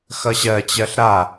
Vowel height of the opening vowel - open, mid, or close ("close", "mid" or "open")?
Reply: mid